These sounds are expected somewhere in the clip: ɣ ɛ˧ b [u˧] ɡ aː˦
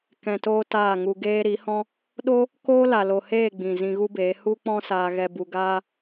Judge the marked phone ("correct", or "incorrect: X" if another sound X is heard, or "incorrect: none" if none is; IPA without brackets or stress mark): correct